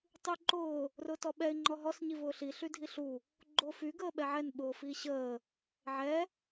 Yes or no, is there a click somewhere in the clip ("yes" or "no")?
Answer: yes